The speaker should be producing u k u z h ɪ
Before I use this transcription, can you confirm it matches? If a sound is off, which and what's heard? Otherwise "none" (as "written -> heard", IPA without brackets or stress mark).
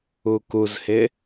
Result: none